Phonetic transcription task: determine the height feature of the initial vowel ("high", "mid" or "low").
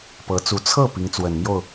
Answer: mid